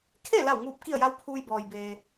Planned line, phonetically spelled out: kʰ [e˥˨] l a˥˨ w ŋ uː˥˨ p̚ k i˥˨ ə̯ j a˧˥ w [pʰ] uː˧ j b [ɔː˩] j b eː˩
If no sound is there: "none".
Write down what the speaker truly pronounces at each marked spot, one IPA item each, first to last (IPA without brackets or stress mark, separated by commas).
e˥˨, pʰ, ɔː˩